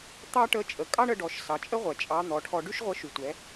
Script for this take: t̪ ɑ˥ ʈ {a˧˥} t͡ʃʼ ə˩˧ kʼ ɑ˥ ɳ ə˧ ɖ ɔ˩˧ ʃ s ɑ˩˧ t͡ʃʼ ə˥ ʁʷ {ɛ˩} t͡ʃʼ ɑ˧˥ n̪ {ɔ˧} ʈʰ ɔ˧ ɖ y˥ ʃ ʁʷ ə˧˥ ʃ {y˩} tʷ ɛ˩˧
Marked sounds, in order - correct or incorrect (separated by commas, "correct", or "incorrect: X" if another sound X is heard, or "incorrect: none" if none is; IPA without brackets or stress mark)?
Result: incorrect: ə˧˥, correct, incorrect: ɔ˩˧, correct